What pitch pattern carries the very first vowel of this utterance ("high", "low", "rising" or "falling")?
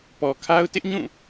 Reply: low